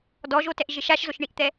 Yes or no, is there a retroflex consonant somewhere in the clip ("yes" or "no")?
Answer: yes